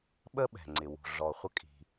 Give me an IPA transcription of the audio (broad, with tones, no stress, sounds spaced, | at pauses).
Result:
ɓ ə˥ ɓ ɛ̤˩ ŋ͡ǀ ɪ˩ w ṳ˩ ɮ ɔ˩ χʷ ə˧ kʼ i̤˩